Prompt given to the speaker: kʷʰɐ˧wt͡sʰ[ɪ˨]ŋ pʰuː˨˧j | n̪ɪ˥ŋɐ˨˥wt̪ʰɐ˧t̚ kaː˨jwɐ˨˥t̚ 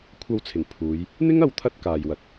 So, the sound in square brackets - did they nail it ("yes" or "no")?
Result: no